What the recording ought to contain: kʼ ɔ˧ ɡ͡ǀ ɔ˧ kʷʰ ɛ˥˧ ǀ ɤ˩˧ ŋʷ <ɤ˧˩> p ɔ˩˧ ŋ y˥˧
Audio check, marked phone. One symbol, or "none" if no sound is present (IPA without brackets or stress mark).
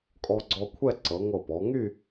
ɤ˧˩